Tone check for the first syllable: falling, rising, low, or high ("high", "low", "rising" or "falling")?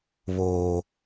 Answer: low